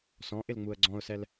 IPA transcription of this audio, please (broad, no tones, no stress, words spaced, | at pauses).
sɔ̃ʔɪlŋ͡muə̯ ɡ͡ǀɔ̃ʊ̯sɛl